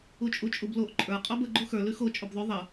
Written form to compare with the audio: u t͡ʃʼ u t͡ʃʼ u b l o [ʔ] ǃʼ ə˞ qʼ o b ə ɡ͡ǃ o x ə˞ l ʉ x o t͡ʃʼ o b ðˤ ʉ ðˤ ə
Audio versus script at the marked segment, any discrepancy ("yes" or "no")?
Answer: no